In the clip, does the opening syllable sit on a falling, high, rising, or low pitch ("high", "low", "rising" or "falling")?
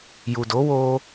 low